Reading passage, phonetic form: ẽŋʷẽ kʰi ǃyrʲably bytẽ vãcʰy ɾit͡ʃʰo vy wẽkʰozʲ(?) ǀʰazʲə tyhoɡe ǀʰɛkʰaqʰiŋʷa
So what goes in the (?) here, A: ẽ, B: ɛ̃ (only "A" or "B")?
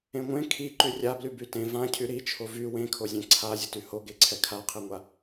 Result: B